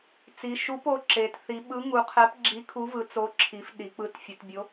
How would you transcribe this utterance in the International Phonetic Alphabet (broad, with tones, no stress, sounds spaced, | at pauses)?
t͡s i˩˧ ʃ u˨˥ p o˩˧ ǁ e˩˧ t θ i˩˧ ɓ ɯ˨˥ ŋ u˩˧ qʰ ɛ˨˥ p ɡ͡ǁ i˨˥ kʰ u˨˥ v ɯ˩˧ t͡s o˨˥ ǁʰ i˩˧ f ɗ i˩˧ k͡p ɯ˨˥ t fʲ ɯ˩˧ t bʲ o˨˥